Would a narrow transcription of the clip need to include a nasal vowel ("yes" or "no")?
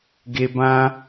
yes